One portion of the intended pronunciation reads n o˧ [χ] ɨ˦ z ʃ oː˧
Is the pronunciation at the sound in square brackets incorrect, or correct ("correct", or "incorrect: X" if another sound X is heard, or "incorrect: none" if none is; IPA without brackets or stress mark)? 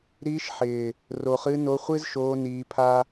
incorrect: χʷ